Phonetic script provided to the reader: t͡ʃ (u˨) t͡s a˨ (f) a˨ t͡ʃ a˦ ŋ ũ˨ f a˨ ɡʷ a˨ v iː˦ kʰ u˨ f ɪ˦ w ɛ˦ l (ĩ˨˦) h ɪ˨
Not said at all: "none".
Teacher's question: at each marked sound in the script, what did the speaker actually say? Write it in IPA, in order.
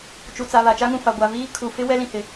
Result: u˨, β, ĩ˨

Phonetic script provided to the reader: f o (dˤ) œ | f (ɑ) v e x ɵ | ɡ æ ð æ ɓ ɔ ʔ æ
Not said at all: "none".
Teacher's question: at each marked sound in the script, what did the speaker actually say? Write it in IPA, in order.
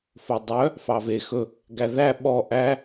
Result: dˤ, ɑ

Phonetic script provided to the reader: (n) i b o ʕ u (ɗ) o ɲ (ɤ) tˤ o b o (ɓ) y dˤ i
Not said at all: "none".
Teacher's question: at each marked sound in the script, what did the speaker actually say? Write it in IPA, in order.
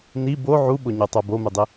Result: n, ɓ, o, m

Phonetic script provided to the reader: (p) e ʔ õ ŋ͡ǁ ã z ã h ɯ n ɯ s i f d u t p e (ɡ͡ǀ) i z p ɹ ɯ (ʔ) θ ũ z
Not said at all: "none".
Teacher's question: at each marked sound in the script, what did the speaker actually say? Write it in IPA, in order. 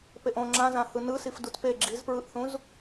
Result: p, ɡ͡ǁ, ʔ

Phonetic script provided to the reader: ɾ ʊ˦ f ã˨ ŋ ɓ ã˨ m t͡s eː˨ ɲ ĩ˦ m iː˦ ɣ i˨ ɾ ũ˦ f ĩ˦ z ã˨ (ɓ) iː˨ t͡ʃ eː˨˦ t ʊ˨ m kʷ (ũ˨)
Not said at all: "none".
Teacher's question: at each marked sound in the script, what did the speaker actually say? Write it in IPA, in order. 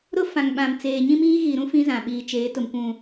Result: ɓ, ũ˨

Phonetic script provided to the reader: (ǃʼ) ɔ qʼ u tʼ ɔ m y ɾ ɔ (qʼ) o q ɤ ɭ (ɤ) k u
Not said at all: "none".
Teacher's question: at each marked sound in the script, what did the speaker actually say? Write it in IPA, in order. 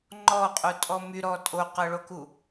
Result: ŋ͡ǃ, tʼ, o

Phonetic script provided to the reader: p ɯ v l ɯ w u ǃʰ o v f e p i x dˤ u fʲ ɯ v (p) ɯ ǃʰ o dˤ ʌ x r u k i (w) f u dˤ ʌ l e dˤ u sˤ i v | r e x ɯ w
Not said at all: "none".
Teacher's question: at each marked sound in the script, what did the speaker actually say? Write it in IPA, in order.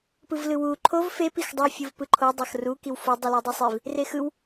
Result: p, w

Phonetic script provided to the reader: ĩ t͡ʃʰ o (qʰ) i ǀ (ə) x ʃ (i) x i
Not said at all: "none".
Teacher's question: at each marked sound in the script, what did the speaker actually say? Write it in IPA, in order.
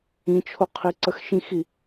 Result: qʰ, ə, ĩ

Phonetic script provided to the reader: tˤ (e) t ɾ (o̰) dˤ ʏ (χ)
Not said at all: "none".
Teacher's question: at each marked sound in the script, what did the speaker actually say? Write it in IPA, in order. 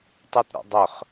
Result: e, o̰, χ

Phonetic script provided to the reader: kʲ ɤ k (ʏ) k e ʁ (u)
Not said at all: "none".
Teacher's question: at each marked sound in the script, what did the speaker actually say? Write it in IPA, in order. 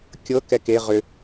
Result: ɛ, ʏ

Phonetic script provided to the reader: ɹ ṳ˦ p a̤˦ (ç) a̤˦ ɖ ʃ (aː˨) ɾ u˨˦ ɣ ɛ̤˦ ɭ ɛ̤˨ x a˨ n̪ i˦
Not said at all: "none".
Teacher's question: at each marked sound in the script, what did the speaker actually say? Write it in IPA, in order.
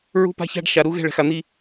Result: ç, a˨

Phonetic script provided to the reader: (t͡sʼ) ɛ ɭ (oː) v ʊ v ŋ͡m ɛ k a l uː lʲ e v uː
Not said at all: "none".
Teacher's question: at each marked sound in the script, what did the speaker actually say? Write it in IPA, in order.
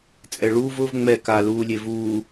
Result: t͡sʼ, uː

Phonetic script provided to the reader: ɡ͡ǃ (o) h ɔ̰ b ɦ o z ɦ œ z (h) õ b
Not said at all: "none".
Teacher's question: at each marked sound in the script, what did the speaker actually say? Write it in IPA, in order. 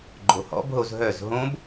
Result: o, ɦ

